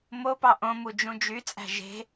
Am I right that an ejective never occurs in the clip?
no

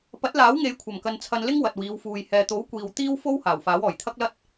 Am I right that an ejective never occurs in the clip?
yes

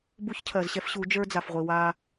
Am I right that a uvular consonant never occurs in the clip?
no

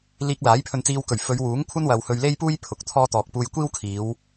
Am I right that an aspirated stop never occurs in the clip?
no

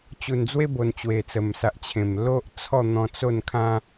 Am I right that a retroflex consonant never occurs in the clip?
yes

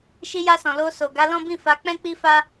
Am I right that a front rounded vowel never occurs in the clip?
yes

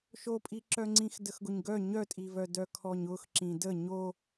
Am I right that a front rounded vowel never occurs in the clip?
no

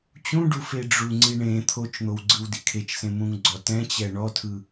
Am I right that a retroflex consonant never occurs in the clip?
no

